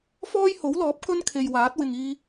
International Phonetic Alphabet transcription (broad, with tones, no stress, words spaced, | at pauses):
fɔː˥jho˨˥wlɔː˨˥p̚ kɵ˥nkʰe˨j waː˨˥t̚wɪ˨ŋiː˧